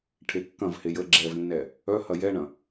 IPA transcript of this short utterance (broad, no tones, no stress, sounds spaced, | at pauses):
ʈʰ e kː ɐ̃ v h e j ə ɡ͡ǁ ɛ v nː ɛ | œ h ɐ j ɛ ɳ ɐ̃